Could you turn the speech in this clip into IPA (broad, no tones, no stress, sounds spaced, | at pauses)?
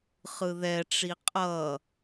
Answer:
χ ɯ ð ɛ ʈ͡ʂ i qʼ ʌ